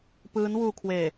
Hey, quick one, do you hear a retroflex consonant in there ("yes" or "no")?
no